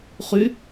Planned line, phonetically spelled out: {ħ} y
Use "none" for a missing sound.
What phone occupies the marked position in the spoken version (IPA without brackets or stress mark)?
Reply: χ